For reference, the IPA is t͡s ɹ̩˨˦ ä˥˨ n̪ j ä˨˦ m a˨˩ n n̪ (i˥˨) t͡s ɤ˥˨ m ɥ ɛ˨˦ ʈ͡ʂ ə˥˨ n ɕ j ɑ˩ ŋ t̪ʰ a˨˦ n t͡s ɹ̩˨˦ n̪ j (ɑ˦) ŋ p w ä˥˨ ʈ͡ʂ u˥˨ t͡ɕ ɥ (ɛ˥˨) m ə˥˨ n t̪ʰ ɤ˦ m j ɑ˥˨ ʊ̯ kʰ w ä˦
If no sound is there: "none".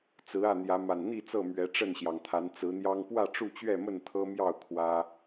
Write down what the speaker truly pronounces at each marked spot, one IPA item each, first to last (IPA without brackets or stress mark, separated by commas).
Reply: i˥˨, ɑ˦, ɛ˥˨